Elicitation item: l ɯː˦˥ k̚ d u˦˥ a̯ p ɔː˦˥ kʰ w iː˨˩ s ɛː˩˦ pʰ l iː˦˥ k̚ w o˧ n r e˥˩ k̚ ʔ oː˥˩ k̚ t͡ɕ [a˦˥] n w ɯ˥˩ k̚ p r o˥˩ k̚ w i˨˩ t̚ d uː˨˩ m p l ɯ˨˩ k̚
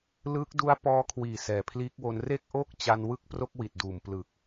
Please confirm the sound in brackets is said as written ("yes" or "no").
no